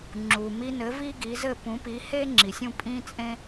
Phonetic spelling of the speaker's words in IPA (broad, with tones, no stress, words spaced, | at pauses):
ŋ͡ǁu˩mi˧nɘ˩˥ vi˥ɡi˩˥zɘ˥˩ pũ˩˥pi˩˥he˥ ŋ͡ǁi˩sʲũ˥˩ pʼĩ˥t͡sʼẽ˥